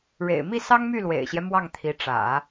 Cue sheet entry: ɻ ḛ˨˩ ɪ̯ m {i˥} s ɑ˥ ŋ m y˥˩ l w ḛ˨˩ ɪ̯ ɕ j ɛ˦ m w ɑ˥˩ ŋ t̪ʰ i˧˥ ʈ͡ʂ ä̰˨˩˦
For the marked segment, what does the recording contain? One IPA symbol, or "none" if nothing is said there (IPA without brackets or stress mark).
i˥˩